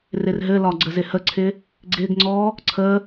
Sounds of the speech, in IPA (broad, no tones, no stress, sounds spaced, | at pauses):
r ɪ r ɦ ɘ l ɒ ɡ͡ǀ ə z ɪ h ə ǀʰ ɪ | ɡ͡ǀ ɪ ɡ ŋ͡ǀ ɔ | ǀʰ ə